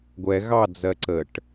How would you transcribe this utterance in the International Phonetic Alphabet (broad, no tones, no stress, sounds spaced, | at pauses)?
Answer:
ɡʷ ɛ ɣ ɑ d͡z ɜ ǀ ə ʈ